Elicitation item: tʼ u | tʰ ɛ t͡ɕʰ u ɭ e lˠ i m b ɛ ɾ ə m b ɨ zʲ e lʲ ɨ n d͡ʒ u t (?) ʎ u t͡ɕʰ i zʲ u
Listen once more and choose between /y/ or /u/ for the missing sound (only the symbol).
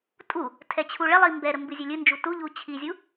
u